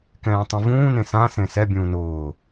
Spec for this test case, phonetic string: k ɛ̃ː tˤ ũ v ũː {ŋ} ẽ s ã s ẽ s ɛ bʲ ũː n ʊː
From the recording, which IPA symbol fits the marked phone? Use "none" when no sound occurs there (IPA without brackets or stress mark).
n